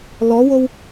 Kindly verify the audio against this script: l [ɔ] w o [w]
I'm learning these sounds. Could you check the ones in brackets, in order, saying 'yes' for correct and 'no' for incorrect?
yes, yes

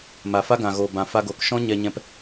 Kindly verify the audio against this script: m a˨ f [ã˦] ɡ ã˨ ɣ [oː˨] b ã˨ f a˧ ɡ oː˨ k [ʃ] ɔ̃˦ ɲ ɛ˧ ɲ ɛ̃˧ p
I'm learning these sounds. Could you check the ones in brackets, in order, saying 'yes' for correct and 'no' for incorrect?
no, yes, yes

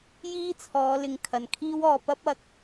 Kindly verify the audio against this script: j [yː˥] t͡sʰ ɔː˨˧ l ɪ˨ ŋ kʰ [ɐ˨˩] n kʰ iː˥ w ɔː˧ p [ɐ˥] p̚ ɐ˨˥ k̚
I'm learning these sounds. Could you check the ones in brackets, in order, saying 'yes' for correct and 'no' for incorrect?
no, yes, yes

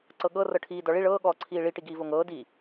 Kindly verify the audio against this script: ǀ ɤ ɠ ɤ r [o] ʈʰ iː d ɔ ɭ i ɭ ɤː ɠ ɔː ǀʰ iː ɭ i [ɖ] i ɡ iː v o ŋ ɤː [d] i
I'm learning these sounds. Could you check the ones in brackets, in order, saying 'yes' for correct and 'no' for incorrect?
no, no, yes

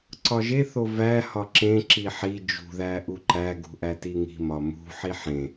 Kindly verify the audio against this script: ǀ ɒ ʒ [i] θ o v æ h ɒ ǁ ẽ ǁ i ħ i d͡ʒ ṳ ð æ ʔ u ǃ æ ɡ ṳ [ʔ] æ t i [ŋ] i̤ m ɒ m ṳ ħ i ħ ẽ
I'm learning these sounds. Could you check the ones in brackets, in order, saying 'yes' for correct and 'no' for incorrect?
no, yes, yes

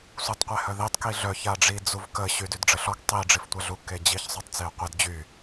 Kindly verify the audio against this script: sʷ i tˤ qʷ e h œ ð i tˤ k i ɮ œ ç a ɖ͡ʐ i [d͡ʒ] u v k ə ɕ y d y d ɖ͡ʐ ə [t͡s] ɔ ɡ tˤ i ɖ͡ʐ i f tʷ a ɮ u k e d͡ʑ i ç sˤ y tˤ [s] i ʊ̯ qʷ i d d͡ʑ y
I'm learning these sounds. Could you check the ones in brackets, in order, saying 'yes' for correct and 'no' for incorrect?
no, no, no

